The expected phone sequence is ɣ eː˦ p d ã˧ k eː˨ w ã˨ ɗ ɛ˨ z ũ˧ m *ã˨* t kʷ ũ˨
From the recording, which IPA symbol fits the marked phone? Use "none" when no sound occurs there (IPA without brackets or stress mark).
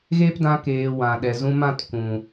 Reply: ã˦˨